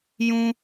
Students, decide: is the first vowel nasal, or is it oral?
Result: nasal